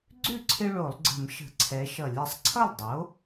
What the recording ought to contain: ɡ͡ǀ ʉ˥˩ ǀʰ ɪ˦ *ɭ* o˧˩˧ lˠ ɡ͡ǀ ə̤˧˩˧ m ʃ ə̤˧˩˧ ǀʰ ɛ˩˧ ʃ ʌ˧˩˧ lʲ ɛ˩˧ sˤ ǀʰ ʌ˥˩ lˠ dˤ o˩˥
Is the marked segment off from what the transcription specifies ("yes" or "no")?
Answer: no